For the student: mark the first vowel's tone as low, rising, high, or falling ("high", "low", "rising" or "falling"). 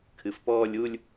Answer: low